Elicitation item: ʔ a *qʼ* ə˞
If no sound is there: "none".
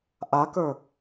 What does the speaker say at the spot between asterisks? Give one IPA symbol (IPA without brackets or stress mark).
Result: k